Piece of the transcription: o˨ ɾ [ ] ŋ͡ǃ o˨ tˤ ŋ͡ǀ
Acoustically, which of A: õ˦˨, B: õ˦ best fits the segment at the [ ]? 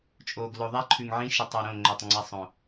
A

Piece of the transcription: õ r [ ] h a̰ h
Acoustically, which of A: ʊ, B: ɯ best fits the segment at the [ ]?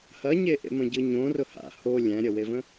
A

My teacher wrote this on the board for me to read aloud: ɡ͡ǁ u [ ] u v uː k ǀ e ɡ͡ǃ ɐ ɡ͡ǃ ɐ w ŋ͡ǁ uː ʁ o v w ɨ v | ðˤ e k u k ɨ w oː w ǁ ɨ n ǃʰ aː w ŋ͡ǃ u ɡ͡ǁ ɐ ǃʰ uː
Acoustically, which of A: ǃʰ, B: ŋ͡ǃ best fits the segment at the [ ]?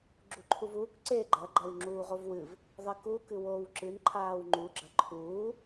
A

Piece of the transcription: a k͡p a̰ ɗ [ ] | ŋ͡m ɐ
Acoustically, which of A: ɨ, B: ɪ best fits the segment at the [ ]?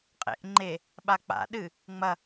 A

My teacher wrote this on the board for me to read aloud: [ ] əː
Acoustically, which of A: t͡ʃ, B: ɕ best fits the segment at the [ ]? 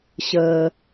B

